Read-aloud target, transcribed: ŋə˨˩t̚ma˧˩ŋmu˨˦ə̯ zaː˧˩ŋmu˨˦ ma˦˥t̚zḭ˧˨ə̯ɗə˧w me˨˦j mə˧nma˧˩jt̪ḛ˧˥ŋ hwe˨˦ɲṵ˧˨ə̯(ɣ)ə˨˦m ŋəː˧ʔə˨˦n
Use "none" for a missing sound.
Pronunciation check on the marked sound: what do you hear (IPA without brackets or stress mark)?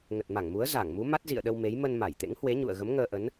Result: ɣ